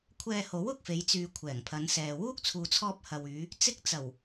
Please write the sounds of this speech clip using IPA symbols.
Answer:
kʷʰ ɛː˧ h o˨˥ w ʊ˨ k̚ f e˨˧ j t͡s yː˨ kʷʰ ɛː˨˩ ŋ pʰ ɐ˨˧ n s ɛː˨ w uː˥ k̚ t͡sʰ uː˨ t͡sʰ ɔː˧ p̚ h ɐ˨ w yː˨˧ | t͡s ɪ˥ k̚ t͡s ɐ˨˩ w

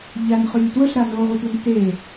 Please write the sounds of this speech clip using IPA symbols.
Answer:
ʎ a n χ ʉ lʲ ɵ t w ɵ ɬ ɾ a n o ʁʷ ɨ tʷ a n t e

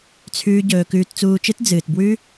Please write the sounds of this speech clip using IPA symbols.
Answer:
t͡sʰ ʉː˦ ɟ ɵː˧ k ʉː˧ t t͡s uː˧ t͡ʃ ɨ˦ t d͡z ɨː˨ t b w ʉ˦

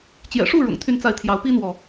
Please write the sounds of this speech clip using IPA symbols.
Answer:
t͡ɕ j ɛ̰˨˩ ʂ u˥˩ ɻ ʊ̰˨˩ ŋ t̪ʰ y˥˧ n t͡s a˥˩ ɪ̯ t̪ʰ j ɑ˧˥ ʊ̯ p i˥ n̪ w ɔ˨

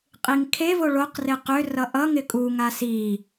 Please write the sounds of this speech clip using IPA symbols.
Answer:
qʼ i ŋ kʰ e v o ɭ o q r e q ø r ʌ ʔ ʌ ŋ ɪ kʼ u ŋ a s i

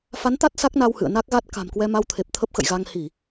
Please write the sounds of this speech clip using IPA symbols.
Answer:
f a˨˦ n t̪ a˦˥ t̚ s a˦˥ k̚ n a˧ w h ɨ̰˧˨ ə̯ n a˦˥ k̚ ɣ a˦˥ t̚ k a̤˨˩ m k w ɛ˧ m a˧ w t̪ʰ e˨˩ p̚ t̪ʰ ə˦˥ p̚ x ə̰˧˨ j ɣ a˧ ŋ h i˧˩˨

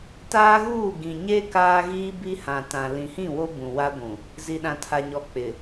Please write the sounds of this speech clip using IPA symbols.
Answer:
t aː˦ ɣ uː˦˨ ɡ ĩ˨ ɲ e˦ k aː˦ ɣ iː˦ b i˦ h ã˨ t ã˨ l ĩ˨ h ĩ˦˨ w o˦ b ũ˨ w a˦ ɡʷ ũ˨ | z i˨ ɗ ã˨ tʰ a˨ ɲ ɔ˨ k͡p ɪ˨

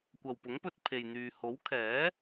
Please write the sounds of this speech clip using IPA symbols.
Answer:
kʷ ɐ˨ w p ʊ˨˥ ŋ p ɵ˧ t̚ pʰ e˨ j n̪ yː˨ h o˨˥ w kʰ ɛː˨˥

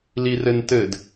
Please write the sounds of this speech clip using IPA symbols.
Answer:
l i r ɘ n t ɘ d

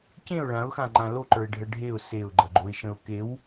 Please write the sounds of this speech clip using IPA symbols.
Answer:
c ẽ ʊ̯ ɭ ã ʊ̯ x ã ŋ͡ǃ ã l o ǃ ə˞ ɪ̯ ɖʱ ə ɖʱ e ʊ̯ s e ʊ̯ ɡ͡ǃ ɐ ɡ͡ǃ o ɪ̯ ʃ ə̃ ʊ̯ k e w

